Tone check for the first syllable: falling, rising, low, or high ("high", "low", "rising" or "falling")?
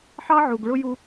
high